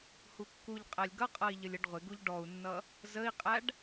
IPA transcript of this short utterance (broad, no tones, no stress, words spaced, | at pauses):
hukːuʎqʼælʲ ɡʌqʼʌi̯ ʎəlʲəɖʁʷɪɡuʎ ɖɔu̯nːʌ | zəi̯qʼæɖ